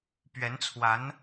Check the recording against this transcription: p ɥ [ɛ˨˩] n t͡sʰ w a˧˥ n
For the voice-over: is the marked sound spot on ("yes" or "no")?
no